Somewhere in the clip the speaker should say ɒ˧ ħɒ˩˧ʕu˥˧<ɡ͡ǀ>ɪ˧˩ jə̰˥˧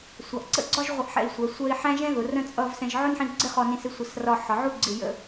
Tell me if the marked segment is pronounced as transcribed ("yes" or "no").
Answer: yes